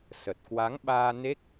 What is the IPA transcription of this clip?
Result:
s ə˨˩ t̚ k w a˨˦ ŋ ɓ aː˧ n e˦˥ k̚

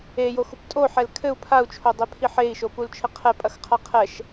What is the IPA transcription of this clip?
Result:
e j o x u p tʼ o ħ ɛ l kʰ ɘ u̯ pʰ a u̯ t͡ʃʰ o dˤ e pʰ i ħ e i̯ ʃ o p u l t͡ʃʰ ɘ qʰ ɛ pʼ ɐ x qʰ a qʰ ɛ ʃ

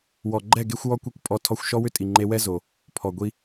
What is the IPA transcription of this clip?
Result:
w ɔ˨ ɡ͡ǃ ɛ˦˨ ɡ e˦ xʷ w ɔ˦ kʷ e˦ kʷ pʼ ɔ˧ tʰ ɔ˧ xʷ ʃ ɔ˦ w ʏ˦ tʼ i˨ ŋ͡ǃ e˧ w ɛ˦ z o˨ | pʰ ɔ˨ ɡʷ i˧

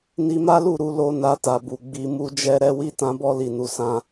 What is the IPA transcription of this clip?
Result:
n i˧ m a˦ l u˦˨ ɾ u˨˦ l o˧ n a˧ t a˨ b u˨ ɡ͡b i˨ m u˧ d͡ʒ ɛ˦ ɾ ɛ˦ w i˦ t ã˦ b ɔ˦ l i˦˨ n u˨˦ s ã˦

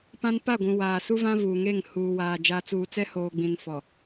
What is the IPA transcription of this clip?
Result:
p ã˦ n p a˦˨ ɡʷ ũ˨ w aː˨ s u˦ v ã˦ v uː˨ ŋ e˦˨ ŋ h uː˨ w aː˨ d͡ʒ a˨ t͡s uː˨ t͡s ɛ˦ h oː˨ ɡ͡b ĩ˨ n f ɔ˨

